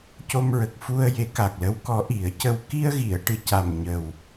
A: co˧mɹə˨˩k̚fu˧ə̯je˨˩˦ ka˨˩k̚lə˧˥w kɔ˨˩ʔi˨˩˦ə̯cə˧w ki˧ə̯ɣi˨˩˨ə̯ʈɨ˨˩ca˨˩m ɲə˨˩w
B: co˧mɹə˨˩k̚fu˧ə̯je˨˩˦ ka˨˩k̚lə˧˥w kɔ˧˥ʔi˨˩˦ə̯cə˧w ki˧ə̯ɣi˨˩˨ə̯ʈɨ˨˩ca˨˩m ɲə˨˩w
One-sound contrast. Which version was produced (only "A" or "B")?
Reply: B